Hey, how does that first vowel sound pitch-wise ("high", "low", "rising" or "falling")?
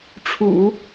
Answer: low